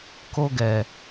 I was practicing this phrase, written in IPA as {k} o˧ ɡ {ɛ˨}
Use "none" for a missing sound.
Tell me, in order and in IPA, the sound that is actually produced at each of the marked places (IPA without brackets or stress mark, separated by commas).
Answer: k, ɛ˨